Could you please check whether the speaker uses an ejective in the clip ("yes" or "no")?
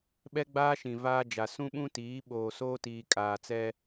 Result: yes